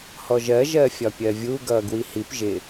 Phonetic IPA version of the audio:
h ɔ ʒ ɜ ʒ ɜ fʲ ɒ pʲ ɜ vʲ u ɡ ʌː ɡ w i h i p ʒ ɪ

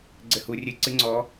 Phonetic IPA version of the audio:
ɡ͡ǀ ɘ h u rʲ ɨ ǀ ɨ ŋ͡ǀ ɔ

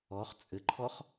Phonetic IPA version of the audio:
ɔ χ t͡sʼ ɘ ǃʰ ɔ χ

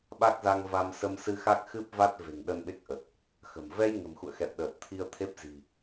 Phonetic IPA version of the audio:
ɓ a˦˥ k̚ z a˧ ŋ v a˧ m s ə˧ m s ɨ˧ x a˦˥ k̚ x ɨ˦˥ p̚ v a˦˥ t̚ v e̤˨˩ ŋ ɗ ə˧ n ɓ e˦˥ k̚ ʔ ə˨˩ t̚ | x ə̤˨˩ m v ɛ˧ j ŋ ə̤˨˩ m x ṵ˧˨ ə̯ x ɛ̰˧˨ w ɗ əː˨˩ t̚ t̪ʰ i˧ ə̯ t̪ʰ e˦˥ p̚ z i̤˨˩

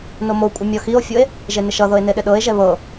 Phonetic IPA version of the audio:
n o m o kʷʼ ɪ mʲ ɔ x i o̯ fʲ o e̯ | ʒ e n ɪ ʃ ʌ ð ɤ e̯ n e ɗ ɪ ɗ ɤ e̯ ʒ ɛ β ɤ

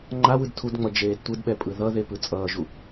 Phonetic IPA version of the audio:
ŋ͡ǃ a w ɯ d tʰ u d ŋ͡m ʌ d͡ʒ eː d tʷ ɯ d ɓ ɛ pʼ ɯ ð ʌ ð e p ɯ t͡sʼ ʌː ʒ u

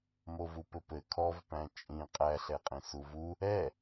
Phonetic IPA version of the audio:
m o v u p ɘ p ɘ kʰ ɔ v p æ̃ t͡ʃʼ ĩ qʼ æ ɬ ɛ qʼ ĩ s u v u | ɛ

